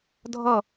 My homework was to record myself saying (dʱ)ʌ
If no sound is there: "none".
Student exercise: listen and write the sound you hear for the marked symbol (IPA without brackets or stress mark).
dʱ